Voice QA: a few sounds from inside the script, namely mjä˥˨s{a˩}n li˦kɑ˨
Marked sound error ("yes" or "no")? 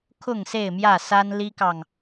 yes